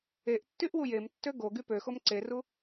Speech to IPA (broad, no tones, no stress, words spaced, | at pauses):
eʔtːyʔ wujemtːø ɡo ɡypøxom ǀeru